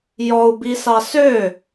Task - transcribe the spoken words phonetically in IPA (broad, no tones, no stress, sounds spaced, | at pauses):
j ɔ u̯ b i s ɑ s ø